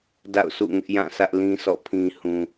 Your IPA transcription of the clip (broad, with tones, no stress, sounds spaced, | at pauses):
d a̰˦˨ ʊ̯ s ṵ˦˨ ŋ ɪ˦ ʔ j ã˦˨ sʰ ä˦ ʔ l ĩ˦ s ɔ̰˦˨ pʰ ĩ˦ h ũ˦